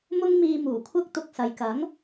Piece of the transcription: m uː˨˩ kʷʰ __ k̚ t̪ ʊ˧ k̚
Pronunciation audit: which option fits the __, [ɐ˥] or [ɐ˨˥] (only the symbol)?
ɐ˥